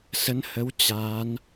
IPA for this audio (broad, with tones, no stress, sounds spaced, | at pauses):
s ə˨˦ n h ə˨˦ w t͡ɕ a˨˦ n